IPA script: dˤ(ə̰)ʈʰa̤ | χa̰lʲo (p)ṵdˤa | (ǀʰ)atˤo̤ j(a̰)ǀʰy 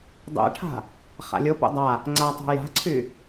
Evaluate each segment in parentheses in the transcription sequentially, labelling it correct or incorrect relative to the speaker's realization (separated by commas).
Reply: incorrect, correct, incorrect, incorrect